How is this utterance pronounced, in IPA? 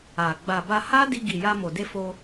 a˨ ɡ͡b a˨ b a˧ h a˦ d i˧ ɡ i˨ j a˧ m o˨ d e˧ f o˧

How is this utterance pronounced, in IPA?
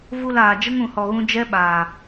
v u˧ l aː˨ d͡ʒ ə˦ ŋ ũ˧ h ɔ˧ ɣ ũ˦ d͡ʒ ɛ˦ ɓ aː˨

